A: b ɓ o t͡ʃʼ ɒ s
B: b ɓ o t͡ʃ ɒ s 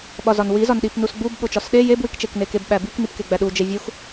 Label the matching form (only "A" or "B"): B